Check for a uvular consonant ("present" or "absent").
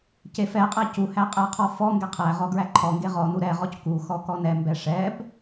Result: present